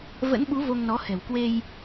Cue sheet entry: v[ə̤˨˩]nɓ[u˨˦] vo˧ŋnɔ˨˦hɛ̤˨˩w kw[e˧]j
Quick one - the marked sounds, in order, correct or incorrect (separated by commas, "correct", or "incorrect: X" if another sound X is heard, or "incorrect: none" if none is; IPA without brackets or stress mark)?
incorrect: ə̰˧˥, correct, correct